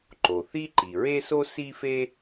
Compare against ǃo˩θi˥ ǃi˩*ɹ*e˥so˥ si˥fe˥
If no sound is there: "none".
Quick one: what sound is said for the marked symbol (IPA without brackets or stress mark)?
ɹ